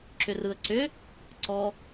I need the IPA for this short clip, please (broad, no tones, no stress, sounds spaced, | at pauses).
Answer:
ǁ ʏ r ɯ ə̯ ǀ ʏ | ǀ ɔ